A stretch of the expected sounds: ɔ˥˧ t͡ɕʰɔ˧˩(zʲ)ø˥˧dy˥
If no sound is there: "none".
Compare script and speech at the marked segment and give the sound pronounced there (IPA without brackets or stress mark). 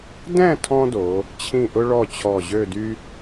ʑ